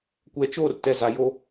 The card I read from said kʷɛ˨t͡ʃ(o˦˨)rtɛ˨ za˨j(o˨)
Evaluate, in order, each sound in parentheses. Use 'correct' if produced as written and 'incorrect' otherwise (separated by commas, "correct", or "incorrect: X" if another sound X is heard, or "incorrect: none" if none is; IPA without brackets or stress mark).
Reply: correct, incorrect: o˦